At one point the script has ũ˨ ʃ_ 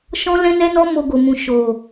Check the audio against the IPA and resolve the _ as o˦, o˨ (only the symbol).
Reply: o˨